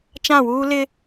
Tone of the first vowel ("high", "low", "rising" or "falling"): falling